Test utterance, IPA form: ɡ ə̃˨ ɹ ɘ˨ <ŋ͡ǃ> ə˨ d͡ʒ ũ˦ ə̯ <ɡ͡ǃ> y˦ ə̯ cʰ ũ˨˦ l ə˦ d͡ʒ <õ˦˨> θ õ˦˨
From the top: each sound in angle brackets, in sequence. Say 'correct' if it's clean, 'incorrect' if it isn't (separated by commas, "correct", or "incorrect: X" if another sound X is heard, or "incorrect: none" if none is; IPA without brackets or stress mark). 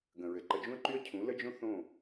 incorrect: ǃ, incorrect: ǃ, incorrect: õ˦